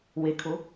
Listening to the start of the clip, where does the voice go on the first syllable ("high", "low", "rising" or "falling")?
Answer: low